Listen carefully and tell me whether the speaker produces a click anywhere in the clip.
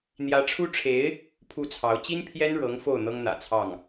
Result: no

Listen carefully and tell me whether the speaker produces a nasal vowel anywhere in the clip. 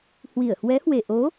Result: no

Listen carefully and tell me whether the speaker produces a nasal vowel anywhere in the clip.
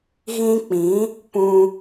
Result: yes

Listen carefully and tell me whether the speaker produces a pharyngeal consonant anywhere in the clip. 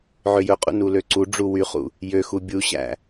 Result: yes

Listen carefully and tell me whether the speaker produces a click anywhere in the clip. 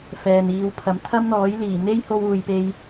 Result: no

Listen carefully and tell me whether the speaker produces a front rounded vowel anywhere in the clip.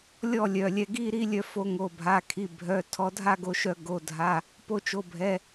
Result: yes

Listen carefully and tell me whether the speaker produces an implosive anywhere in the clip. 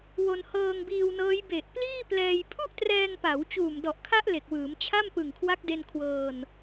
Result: no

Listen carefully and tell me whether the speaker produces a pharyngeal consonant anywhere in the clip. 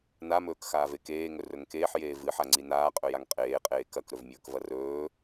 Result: yes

